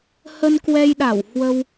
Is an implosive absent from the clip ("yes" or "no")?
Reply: no